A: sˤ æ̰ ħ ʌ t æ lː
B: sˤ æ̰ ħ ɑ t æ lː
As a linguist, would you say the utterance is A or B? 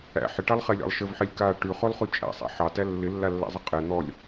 B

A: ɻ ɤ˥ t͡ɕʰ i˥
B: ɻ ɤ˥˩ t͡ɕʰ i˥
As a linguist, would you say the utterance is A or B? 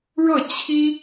B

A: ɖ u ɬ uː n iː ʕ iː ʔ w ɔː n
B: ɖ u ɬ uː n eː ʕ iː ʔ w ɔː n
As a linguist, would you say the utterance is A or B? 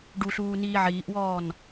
A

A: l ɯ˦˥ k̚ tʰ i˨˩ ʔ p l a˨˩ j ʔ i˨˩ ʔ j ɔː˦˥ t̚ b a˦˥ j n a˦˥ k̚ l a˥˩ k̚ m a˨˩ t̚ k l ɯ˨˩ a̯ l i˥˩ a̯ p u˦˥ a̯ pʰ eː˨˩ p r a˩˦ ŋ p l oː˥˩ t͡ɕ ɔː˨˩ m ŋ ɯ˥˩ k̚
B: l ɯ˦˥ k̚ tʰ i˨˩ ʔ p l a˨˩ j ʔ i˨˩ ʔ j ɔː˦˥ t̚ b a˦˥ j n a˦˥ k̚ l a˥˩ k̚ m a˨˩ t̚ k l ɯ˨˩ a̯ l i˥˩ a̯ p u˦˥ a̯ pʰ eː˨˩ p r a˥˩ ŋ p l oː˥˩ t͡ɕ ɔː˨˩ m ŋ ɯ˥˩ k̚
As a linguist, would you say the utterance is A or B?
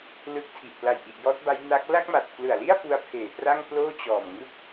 B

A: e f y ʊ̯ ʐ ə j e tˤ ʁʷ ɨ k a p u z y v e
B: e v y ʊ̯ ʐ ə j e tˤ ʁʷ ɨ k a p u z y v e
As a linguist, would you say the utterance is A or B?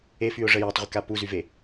A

